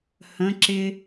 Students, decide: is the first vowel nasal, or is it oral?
nasal